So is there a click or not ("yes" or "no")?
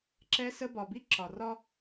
yes